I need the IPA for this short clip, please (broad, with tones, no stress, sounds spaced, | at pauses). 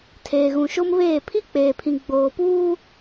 tʰ eː˨ ɣ ũ˨ ʃ o˦ m β eː˦˨ pʰ i˦ k͡p eː˨ pʰ ĩ˨ ɡ͡b oː˨ p uː˦